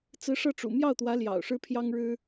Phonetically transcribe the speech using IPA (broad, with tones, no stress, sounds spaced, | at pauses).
t͡s ɹ̩˧˥ ʂ ɤ˥˩ ʈ͡ʂ ṵ˨˩ m j ɑ˥˩ ʊ̯ t̪ w ä˧˥ l j ɑ̰˨˩ ʊ̯ ʂ ɻ̩˥ pʰ j ɑ˥ ŋ ɻ ɻ̩˥